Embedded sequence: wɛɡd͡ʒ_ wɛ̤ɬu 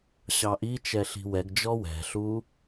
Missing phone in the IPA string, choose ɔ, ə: ɔ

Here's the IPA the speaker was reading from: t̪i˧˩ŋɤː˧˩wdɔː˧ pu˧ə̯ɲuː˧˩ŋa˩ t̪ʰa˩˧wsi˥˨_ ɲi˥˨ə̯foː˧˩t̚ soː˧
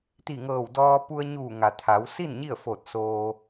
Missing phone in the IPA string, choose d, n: n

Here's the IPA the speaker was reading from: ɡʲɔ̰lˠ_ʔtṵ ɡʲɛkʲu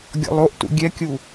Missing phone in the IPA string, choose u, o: o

